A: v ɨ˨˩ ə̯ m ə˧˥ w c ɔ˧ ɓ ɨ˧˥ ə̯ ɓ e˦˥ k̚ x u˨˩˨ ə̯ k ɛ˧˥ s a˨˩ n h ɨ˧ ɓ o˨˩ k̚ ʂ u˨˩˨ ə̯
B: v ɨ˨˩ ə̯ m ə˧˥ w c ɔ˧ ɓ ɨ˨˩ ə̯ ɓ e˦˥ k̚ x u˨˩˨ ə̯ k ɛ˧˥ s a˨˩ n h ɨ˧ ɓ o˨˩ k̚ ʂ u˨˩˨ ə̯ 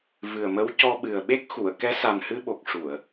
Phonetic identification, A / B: B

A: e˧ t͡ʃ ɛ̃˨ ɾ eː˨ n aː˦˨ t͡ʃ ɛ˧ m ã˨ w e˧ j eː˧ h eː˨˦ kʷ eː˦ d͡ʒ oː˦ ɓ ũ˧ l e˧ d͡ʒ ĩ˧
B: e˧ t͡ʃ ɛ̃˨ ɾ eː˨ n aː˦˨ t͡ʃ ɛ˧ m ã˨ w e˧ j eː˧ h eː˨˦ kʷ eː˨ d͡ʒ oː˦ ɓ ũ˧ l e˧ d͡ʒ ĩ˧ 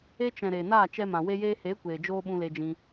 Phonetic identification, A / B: B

